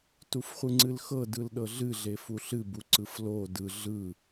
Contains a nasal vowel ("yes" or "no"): no